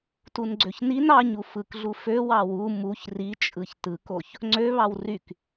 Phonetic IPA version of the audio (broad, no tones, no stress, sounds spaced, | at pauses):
t u n ɡ͡ǀ ø ç n i n ɑ ɲ u f ɯ k ɮ u f ø w ɑ w u m u ç r i t͡ʃʼ ɯ ç t ɯ k o ç | ŋ͡ǀ ø β ɑ w r y k